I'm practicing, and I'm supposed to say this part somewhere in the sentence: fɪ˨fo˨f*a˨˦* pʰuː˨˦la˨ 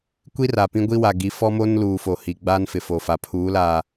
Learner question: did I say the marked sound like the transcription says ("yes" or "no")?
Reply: no